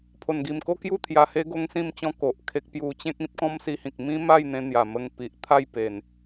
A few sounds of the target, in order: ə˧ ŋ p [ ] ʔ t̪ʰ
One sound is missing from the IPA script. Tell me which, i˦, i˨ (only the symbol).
i˨